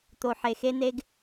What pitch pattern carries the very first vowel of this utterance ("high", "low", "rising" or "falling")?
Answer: low